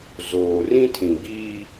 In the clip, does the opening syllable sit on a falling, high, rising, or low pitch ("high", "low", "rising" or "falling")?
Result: low